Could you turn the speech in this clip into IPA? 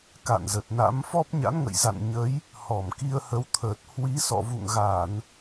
k a̰˧˨ n z ə˨˩ t̚ n a̰˧˥ m f ɔ˦˥ p̚ ɲ a̰˧˥ n ŋ ə̰˧˨ j z a̰˧˨ n ɲ ə˨˦ j | h ɔ˧˩ m k i˧ ə̯ h ə˨˦ w t̪ʰ əː˨˩ t̚ h w i˨˦ s ɔ̰˧˨ v ṵ˧˨ ŋ ɣ a˧˩˨ n

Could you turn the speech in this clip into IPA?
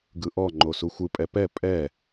ɡ ɯ ʔ ɔ ŋ͡ǃ o s u xʷ ɯ pʼ ɛ p ɛ pʼ ɛ

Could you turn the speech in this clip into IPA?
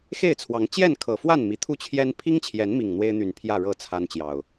x e˥˨ ɪ̯ t͡sʰ w ɑ˨˦ ŋ t͡ɕ j ɛ˥˨ n kʰ ɤ˨˩ f w a˥˨ n m i˨˩ t̪ʰ u˥˨ t͡ɕʰ j ɛ˦ n pʰ i˦ ŋ t͡ɕʰ j ɛ˨˦ n m i˨˩ ŋ n̪ w e˦ ɪ̯ n̪ y˨˩ n pʰ j ä˥˨ ɻ ɤ˥˨ t͡sʰ a˦ n t͡ɕ j ɑ˨˩ ʊ̯

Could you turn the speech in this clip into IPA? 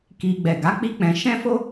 k i˧ ɡ͡b ɛ˨ ɡ a˨˦ k͡p i˦ k͡p ɛ̃˧ ʃ ɛ̃˦ f o˦

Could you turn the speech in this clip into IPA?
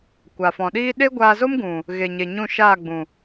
kʷ a˨ f ɔ̃˨ ɗ iː˦ ɗ e˦ ɡʷ aː˧ z o˦ m ɡ ũ˨ | ɣ e˨ ɲ e˨ ɲ ũ˦˨ ʃ aː˦˨ ɡ͡b ũ˨

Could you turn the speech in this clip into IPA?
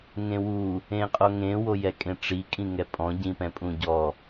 ŋ ẽ w u | ẽ qʼ o ŋ ẽ w o j ɛ kʼ ẽ ʈ͡ʂ i kʼ ĩ ŋ ɛ pʼ ɔ̃ ɟ ĩ p ɛ̃ pʼ ũ ɟ ɔ

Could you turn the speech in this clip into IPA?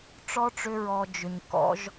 ʈ͡ʂ ɔ˦ ʈ͡ʂ ʏ˧ ɹ ɔ˨ d͡ʒ ʏ˨ ɲ k ɔ̰˨˦ ʒ

